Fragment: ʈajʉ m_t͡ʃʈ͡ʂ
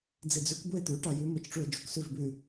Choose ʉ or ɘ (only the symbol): ɘ